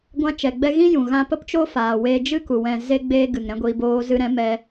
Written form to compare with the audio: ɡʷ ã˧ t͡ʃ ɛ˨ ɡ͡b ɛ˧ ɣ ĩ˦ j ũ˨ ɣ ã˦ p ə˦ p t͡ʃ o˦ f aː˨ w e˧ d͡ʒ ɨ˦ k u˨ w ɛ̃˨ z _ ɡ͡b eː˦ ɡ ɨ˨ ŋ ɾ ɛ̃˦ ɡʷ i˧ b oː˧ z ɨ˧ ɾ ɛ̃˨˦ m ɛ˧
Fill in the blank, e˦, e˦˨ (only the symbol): e˦